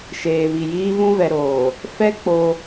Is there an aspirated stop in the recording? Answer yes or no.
no